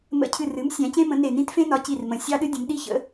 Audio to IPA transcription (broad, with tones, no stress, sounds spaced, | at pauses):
m ə̰˧˩ cʰ ɨ˧˩ r ɨ˩˥ m sʲ æ̃˩˥ c ẽ˦˥ m ə̃˩˥ n e˧˩ n ĩ˦˥ t f ẽ˦˥ n ɒ˩˥ c i˧˩ r m ə̃˩˥ sʲ ɑ˦˥ ɗ ɨ˦˥ dʲ ə̃˩˥ m ɗ i˦˥ ç ə̰˩˥